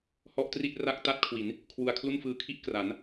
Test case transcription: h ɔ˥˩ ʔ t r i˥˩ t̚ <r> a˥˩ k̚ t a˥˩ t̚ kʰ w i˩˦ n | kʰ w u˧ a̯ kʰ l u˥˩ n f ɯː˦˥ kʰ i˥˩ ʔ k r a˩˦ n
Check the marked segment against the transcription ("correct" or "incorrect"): correct